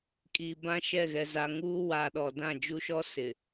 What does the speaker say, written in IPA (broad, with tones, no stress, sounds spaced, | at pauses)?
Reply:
kʼ iː˨ b ã˦ ʃ ɛ˦˨ ɣ ɛ˨ z a˨ ŋ uː˦ w a˨ ɗ ɔ˨ d ã˦˨ d͡ʒ u˦ ʃ ɔ˦ s ɪ˨